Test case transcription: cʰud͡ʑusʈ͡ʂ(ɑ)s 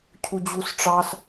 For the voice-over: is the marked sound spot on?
yes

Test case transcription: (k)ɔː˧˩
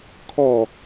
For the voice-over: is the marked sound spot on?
no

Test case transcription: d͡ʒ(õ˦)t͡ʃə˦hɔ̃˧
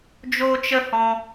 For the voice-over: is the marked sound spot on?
no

